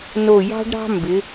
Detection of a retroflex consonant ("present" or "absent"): present